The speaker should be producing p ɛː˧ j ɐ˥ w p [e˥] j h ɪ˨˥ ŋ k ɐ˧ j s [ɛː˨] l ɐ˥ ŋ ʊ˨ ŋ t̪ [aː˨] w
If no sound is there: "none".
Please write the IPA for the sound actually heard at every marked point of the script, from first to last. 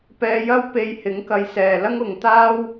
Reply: e˧, ɛː˨, aː˥

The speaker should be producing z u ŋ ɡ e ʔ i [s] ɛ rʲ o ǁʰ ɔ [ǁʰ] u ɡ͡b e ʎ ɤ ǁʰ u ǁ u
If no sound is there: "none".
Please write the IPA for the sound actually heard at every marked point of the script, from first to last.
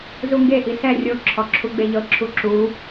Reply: s, ǁʰ

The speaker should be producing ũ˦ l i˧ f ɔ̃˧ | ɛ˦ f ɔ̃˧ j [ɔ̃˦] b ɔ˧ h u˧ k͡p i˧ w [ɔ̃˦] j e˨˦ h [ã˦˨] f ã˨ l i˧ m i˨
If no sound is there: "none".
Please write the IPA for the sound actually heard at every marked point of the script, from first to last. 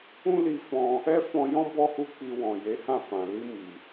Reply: ɔ̃˦, ɔ̃˨, ã˦˨

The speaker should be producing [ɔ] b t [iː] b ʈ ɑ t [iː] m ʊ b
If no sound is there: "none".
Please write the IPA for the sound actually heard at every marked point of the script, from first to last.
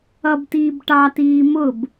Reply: ʌ, iː, iː

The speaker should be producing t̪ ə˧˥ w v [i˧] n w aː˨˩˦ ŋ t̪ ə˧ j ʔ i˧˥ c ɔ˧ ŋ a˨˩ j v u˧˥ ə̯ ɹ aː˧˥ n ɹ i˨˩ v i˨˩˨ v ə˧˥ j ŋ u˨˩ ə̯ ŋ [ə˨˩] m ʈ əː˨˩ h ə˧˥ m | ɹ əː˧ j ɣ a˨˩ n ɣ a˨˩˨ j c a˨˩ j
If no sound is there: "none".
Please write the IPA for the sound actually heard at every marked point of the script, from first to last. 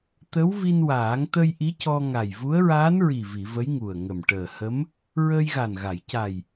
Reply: i˧, ə˨˩

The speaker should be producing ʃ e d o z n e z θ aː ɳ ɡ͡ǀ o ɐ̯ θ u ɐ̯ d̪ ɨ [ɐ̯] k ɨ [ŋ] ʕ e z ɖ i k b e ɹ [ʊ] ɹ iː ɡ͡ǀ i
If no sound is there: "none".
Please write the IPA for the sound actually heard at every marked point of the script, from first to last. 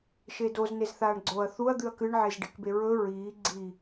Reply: ɐ̯, ɳ, ɵ

